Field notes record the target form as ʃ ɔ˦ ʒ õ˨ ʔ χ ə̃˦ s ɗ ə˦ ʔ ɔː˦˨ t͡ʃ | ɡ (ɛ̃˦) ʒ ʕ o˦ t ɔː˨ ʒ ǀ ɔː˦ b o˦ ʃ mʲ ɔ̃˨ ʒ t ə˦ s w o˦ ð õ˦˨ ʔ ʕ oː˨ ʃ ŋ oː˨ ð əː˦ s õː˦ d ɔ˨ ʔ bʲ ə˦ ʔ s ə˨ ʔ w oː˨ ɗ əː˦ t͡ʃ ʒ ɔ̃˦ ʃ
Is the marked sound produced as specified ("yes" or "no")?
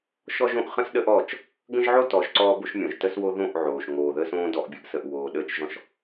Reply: no